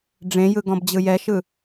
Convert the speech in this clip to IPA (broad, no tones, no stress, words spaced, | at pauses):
ɖ͡ʐẽjɯ ɡɔ̃bd͡ʑɯjɛʃɯ